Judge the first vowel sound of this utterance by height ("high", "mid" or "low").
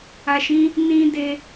low